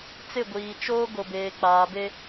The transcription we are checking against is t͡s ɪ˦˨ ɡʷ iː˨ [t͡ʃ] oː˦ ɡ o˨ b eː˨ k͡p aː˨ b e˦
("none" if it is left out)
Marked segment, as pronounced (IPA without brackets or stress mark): t͡ʃ